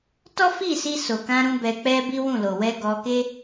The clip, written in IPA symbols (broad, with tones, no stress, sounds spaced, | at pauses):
t ɔ˦ f i˦˨ s i˧ s o˨ k ã˧ ɾ ũ˧ b ɛ˧ k͡p ɛ˦ b i˦ w ũ˦˨ l o˨ w ɛ˧ ɡ ɔ˧ k e˦